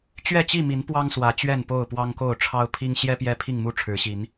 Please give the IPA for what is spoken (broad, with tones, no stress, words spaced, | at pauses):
t͡ɕɥɛ˥˨t͡ɕi˥˨mi˨˦n pwɑ˦ŋswä˨˦ t͡ɕɥɛ˥˨npo˥˨ʊ̯pwɑ˦ŋko˥˨ʊ̯ ʈ͡ʂʰɑ˦ʊ̯pʰi˦ŋ ɕjɛ˦ pjɛ˦pʰi˥˨ŋmu˥˨ ʈ͡ʂʰɻ̩˨˦ɕi˨˦n